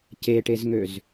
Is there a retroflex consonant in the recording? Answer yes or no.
yes